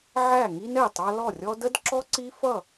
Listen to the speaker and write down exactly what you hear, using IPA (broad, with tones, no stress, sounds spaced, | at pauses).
ʕ æ˥˨ ŋ i˥ n ɛ˥˨ tˤ ɑ˥ l ɔ˥˨ rʲ ɔ˥ d ə˥ d ǁ ɔ˥ ǀ i˥ f ʌ˥˨